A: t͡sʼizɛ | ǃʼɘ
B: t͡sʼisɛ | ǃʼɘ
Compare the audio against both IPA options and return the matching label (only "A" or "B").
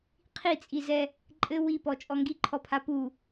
A